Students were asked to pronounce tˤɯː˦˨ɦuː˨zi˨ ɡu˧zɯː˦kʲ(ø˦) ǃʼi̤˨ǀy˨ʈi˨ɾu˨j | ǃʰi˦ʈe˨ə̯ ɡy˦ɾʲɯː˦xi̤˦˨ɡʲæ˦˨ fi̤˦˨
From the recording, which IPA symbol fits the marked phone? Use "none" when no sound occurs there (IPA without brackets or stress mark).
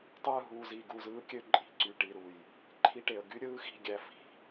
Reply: ø˦